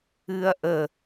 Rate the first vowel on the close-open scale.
close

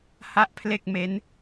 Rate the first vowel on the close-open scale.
open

